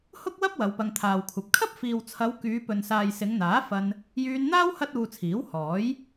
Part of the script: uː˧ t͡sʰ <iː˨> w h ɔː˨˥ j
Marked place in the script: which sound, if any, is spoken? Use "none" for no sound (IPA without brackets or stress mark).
iː˨˥